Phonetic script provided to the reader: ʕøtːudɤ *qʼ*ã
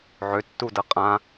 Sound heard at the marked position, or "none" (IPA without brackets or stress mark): qʼ